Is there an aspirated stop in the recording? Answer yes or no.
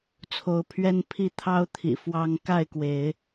yes